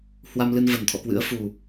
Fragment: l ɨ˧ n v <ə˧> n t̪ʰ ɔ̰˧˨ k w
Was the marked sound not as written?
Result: yes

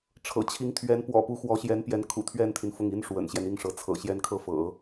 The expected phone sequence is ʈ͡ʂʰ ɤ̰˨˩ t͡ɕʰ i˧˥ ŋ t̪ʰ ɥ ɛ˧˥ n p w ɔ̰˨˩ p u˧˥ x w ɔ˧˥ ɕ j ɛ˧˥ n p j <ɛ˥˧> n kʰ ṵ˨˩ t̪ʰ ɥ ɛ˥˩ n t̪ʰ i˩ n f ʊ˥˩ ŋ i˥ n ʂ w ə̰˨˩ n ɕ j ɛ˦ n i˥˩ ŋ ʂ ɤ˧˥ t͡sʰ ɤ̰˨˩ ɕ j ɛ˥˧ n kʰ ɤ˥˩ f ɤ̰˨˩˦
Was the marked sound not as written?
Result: yes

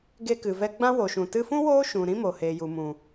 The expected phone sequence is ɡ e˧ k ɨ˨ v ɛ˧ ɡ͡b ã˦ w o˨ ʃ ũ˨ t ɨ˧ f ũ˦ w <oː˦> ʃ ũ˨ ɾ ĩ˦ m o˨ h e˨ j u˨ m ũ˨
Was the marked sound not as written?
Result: no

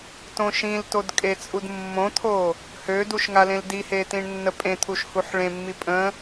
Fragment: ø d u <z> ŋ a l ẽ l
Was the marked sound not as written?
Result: yes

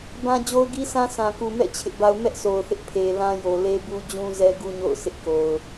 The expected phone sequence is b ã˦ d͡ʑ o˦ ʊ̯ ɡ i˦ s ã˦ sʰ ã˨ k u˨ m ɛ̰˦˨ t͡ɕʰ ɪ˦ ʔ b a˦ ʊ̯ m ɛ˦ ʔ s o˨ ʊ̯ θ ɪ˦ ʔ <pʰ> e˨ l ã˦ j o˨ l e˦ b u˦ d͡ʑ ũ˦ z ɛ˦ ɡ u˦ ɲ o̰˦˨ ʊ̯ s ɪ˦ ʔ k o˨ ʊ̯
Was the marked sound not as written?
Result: no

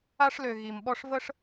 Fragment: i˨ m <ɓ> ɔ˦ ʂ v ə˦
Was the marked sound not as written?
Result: no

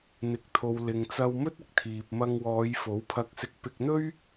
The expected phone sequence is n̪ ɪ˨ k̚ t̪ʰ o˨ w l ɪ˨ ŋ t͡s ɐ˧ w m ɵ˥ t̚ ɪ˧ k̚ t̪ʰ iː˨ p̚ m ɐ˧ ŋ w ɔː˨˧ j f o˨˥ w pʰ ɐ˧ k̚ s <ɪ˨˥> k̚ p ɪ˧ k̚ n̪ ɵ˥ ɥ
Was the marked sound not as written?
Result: yes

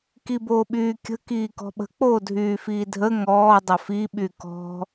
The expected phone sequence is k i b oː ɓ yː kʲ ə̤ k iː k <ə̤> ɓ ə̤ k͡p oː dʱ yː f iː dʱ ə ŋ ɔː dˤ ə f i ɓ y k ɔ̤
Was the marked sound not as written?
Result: yes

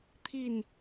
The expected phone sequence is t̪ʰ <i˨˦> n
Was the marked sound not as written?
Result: yes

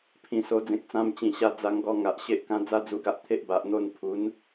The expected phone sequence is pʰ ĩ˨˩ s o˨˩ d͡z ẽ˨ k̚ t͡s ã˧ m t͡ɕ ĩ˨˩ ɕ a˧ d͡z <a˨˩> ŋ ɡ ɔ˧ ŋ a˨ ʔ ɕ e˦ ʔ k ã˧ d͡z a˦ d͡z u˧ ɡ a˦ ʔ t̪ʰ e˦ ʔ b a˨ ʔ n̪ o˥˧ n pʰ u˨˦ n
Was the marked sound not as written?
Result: yes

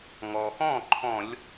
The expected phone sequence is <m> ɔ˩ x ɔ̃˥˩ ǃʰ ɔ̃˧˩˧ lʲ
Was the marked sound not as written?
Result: yes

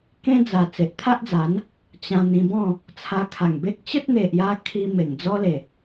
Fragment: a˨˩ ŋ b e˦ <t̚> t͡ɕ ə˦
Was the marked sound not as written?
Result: yes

